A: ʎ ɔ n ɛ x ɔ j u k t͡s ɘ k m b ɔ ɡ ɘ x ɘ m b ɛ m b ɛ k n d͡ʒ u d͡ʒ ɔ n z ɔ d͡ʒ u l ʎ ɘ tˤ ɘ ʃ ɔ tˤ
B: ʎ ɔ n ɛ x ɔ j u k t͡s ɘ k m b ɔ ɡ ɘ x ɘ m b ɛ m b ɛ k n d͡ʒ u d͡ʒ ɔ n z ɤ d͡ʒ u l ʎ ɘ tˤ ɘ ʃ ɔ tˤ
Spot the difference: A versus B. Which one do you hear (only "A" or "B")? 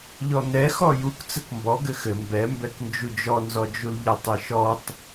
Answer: A